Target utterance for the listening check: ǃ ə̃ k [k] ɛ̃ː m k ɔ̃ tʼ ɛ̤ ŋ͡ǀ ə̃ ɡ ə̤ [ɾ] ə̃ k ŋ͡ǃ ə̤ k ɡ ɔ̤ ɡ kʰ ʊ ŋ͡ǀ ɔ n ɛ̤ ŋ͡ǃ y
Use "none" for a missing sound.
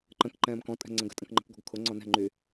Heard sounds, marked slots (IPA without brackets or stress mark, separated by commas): ǃ, tʼ